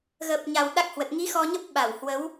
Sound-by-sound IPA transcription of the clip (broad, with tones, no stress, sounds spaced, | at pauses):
ɣ əː˨˩ p̚ ɲ a˨˩ w ɗ a˦˥ k̚ h w ə˨˩ t̚ ŋ i˨˦ x ɔ˧ ɲ ə˦˥ p̚ ɓ a˧˩ w h w ə˨˦ w